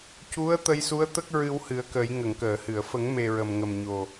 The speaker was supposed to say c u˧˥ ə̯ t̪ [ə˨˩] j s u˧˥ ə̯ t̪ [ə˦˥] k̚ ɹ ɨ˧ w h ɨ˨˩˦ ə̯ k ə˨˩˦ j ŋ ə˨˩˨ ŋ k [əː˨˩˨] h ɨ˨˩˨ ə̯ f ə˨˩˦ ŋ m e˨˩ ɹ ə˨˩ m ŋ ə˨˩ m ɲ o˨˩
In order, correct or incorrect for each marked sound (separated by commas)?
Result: incorrect, correct, correct